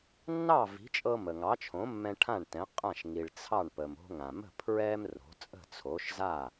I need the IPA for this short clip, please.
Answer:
nːɑ˥˩vi̤˩˥t͡ʃʼɤ˧ mə˩ŋɑ˩˥t͡ʃʰõ˩˥mːɛ̃˧ ʈʰã˥˩ɳtɛ̃˩˥ qʼã˥˩ʃ ŋi˩ɭt͡sʰɑ˥˩ɳpə˩m o̤˧ŋã˩mə̤˥˩ pʰɹɛ˥m ro̤˩˥t͡sʼə̤˥˩t͡sʰo˩˥ʃza˥˩

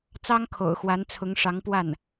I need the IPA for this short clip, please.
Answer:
t͡sɑ˥ŋkʰo̰˨˩ʊ̯xwa˧˥n t͡sʰʊ˧˥ŋʂɑ˧˥ŋpwa˥˩n

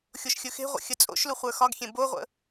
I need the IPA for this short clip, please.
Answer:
xʲoʃxʲɵxe̤ʁʷə̰ xʲət͡sʼo̰ʃlu χʷə˞xɒɡxʲẽ boʁʷə̰

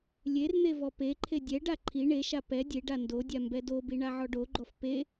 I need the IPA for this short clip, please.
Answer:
lʲern̪e vɔpeǃʰe dʲɛɖa ǃʰi ɳeʃa pɛ dʲeɖa ndodʲa mbɛdobi ɳaʕɔɖoɡ͡ǃɔf pe

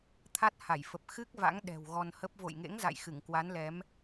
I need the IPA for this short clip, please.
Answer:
t̪ʰa˦˥t̚ ha˧˩jfə˨˩p̚ xɨ˦˥k̚ va̰˧˥ŋ ɗɛ̤˨˩w ɣɔ˧nhə˦˥p̚ vo̰˧˨jŋḛ˧˥ŋ za̰˧˨jxɨ˧˩ŋ kwa˨˦nlɛ˨˦m

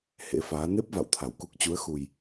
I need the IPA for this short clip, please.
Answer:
hḛ˧˥faː˨˦ ne˦˥p̚va̰˧˨w t̪ʰa˧˩wku˦˥k̚ t͡ɕu˨˦ə̯xu˨˩j

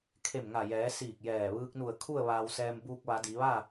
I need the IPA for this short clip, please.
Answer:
kʰe˧˩mŋa˧˩jɛː˩˧ siː˧˩k̚jɛː˧˩ ʋɯː˧k̚nu˧˩ə̯ kʰu˥˨ə̯ʋaː˧wsɛː˧m buː˧k̚ʋa˩˧ di˩˧ʋa˥˨

